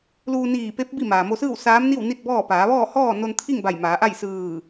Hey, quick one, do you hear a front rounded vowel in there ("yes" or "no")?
no